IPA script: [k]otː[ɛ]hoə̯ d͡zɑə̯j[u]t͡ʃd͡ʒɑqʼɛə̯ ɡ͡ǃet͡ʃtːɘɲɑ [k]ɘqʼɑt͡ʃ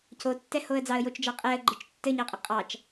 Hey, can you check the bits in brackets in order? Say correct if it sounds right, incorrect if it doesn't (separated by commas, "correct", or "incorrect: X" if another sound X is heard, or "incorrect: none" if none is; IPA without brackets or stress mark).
incorrect: c, correct, incorrect: o, incorrect: qʼ